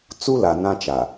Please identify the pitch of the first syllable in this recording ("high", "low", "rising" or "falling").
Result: high